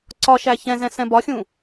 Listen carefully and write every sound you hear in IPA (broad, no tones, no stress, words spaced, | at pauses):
ǀɒʃæ çɛ̃zɛ̃ sɛ̃bɒxʲũ